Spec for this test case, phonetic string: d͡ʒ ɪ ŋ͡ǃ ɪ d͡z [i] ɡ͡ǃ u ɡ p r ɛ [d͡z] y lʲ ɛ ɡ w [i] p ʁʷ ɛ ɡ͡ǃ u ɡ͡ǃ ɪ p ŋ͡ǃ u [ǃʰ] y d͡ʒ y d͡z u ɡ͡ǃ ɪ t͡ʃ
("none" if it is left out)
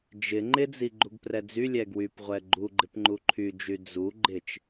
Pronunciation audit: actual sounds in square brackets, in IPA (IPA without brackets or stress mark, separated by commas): i, d͡z, y, ǃʰ